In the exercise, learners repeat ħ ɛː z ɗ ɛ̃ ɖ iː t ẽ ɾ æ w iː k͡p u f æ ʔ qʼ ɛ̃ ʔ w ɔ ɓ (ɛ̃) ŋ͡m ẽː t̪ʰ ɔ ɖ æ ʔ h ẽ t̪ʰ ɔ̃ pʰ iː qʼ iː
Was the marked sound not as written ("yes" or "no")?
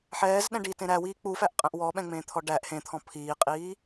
no